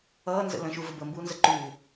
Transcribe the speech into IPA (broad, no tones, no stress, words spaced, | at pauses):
ʌːnzə̰ lə̃ʃuvə bəmbuːnzə ǃu